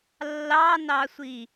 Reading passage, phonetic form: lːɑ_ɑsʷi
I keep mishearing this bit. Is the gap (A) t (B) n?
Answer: B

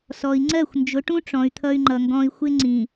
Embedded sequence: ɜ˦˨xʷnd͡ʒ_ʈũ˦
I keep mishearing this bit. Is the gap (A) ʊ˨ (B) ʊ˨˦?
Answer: B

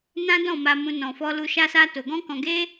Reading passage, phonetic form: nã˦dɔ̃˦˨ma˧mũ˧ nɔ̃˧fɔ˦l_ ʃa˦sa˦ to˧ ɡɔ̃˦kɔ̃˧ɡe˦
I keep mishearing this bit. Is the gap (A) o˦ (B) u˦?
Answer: B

